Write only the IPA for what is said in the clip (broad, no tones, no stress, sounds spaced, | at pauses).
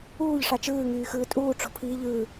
uː ʎ ʂ ɑ t͡ʃ ɯː ŋ yː x ɯː tʼ uː ʈ͡ʂ o̤ pʰ iː ʎ ɯː